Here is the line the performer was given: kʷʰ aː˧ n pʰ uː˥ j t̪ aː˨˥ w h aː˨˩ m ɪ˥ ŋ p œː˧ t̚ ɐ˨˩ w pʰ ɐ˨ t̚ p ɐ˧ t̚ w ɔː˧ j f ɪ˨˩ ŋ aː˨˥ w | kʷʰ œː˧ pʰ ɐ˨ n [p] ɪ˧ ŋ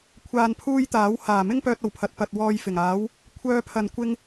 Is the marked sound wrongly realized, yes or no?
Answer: yes